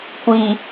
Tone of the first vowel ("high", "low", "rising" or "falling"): low